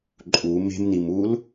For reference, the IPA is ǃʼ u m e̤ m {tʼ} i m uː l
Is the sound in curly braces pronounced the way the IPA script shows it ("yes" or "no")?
no